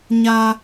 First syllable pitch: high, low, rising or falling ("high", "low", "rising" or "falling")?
low